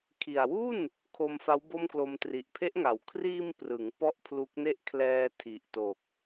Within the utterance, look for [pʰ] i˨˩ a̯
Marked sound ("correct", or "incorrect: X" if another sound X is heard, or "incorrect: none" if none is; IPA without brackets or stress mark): incorrect: kʰ